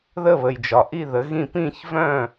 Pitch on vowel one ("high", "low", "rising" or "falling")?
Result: falling